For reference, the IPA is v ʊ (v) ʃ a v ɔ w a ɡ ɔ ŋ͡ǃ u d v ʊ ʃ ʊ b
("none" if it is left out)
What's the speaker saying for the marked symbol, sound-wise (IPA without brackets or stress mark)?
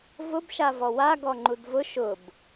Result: b